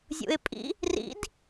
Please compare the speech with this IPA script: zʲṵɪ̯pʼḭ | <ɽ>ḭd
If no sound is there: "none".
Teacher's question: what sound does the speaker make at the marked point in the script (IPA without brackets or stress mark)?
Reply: r